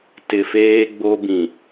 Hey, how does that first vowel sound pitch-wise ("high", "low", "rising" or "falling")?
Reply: low